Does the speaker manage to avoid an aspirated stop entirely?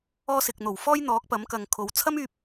no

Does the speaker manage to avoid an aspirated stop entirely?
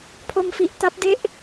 no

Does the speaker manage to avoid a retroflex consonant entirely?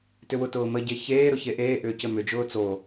yes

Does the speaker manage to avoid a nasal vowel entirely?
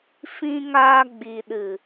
no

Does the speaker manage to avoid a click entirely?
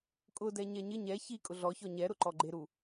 no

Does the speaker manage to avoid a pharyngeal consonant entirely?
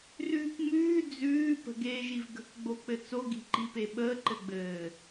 yes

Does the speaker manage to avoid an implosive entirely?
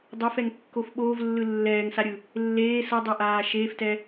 no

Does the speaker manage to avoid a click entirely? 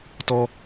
yes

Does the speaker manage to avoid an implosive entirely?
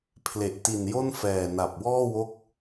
yes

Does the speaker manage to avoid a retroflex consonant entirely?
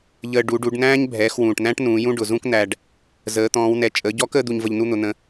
no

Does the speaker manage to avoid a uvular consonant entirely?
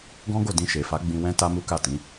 yes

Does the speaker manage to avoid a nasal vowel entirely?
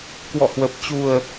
yes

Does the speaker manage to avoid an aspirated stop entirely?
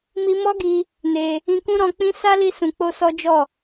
yes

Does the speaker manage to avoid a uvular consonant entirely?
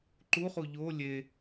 no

